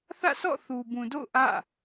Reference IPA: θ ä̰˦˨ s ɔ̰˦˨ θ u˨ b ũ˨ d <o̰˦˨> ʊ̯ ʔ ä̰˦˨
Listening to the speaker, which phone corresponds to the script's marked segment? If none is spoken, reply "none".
o̰˦˨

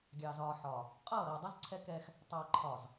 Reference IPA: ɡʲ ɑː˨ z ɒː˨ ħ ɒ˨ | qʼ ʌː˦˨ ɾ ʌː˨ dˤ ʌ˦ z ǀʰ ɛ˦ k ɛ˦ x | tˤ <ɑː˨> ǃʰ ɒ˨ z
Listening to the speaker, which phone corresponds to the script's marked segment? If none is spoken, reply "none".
ɑː˨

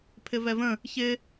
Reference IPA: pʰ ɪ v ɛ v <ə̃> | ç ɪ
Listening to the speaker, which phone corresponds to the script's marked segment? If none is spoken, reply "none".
ə̃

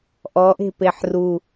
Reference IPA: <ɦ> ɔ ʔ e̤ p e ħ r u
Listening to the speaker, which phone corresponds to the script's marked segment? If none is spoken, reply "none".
ʔ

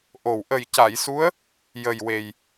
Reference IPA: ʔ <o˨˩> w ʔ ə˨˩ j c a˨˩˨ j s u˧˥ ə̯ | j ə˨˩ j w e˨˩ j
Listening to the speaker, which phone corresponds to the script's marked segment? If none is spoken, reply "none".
o˨˩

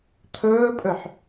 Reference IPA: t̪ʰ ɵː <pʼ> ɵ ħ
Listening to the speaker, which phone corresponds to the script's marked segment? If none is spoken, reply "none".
pʼ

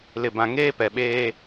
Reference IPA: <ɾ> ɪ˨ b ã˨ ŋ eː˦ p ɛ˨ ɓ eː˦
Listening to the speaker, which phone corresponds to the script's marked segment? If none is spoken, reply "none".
l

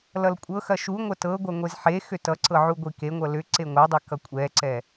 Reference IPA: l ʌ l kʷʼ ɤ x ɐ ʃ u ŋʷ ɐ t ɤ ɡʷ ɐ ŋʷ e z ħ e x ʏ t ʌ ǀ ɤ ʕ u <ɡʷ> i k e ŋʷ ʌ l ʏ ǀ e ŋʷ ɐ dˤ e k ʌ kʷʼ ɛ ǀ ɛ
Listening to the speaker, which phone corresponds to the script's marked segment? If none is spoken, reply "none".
ɡʷ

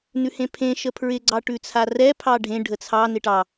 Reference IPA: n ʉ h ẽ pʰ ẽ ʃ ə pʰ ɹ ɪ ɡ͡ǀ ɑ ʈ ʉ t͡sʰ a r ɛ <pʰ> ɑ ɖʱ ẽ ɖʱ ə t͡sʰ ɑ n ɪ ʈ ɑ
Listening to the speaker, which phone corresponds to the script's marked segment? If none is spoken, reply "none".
pʰ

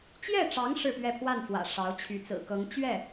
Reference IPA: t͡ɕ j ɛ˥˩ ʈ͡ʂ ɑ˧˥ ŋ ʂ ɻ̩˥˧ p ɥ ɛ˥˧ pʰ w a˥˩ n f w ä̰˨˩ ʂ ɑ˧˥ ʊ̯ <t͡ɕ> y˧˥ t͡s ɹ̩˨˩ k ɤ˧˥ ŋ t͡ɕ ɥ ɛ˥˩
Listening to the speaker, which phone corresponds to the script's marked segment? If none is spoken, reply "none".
t͡ɕʰ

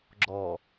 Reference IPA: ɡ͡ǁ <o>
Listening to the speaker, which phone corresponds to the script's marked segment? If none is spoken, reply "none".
ɔ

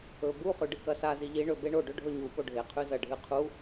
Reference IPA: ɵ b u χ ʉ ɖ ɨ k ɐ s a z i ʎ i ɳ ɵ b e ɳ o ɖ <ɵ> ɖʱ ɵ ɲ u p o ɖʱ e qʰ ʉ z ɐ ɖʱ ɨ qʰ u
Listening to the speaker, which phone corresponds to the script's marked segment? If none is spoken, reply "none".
ɵ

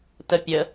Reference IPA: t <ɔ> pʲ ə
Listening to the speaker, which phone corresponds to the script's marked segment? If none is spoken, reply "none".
ə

